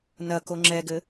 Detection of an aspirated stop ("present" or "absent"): absent